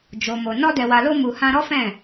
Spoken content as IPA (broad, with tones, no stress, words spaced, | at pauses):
d͡ʒo˨mo˨ nɔ˧dɛ˨wa˨lo˧ mu˨ hã˧ɾɔ˦fɛ̃˦˨